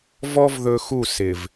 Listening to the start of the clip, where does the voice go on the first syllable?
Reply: high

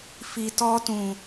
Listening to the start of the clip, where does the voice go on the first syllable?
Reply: low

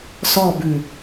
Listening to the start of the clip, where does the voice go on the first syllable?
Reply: falling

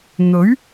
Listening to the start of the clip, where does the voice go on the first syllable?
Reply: rising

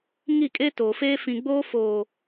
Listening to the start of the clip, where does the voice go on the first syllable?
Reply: falling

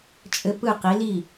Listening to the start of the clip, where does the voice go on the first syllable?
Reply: high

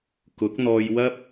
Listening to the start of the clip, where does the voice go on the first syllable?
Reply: rising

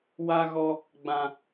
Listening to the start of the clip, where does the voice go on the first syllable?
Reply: high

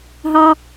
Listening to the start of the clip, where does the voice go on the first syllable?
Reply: high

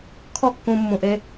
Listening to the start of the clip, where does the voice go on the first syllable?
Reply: high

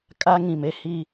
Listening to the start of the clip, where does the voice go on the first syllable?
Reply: high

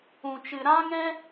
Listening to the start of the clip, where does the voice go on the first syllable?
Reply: low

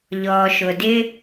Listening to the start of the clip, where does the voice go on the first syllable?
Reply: low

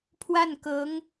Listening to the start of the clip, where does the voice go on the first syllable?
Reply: falling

